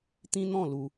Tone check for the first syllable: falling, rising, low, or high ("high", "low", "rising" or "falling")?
high